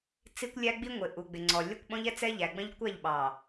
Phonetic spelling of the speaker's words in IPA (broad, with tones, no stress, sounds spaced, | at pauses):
t͡s i˦ kʷ lʲ æ˦ ɡ͡b i˦ ŋʷ ɪ˨ ʔ u˨ ɡ͡b ɪ˨ ŋ͡ǀ ɔ˨ lʲ ʌ˦ kʷ ɓ ɔ̃˦ ʎ ɛ˦ t͡s ɛ˦ ʎ æ˨ ɡ͡b ə̃˦ ʎ kʷ æ˦˨ ʎ ɓ ɑ˨